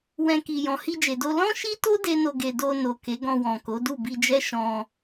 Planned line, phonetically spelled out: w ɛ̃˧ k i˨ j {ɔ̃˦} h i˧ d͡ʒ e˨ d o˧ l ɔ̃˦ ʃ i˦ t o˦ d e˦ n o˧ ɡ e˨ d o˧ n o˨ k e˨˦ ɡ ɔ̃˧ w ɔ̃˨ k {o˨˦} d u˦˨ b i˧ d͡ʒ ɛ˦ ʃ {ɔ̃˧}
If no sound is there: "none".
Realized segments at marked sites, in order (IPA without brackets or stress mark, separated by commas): ɔ̃˨, o˨˦, ɔ̃˧